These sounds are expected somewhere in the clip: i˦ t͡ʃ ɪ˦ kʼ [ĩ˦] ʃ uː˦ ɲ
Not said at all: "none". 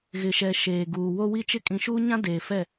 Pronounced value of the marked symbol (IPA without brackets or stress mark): ĩ˨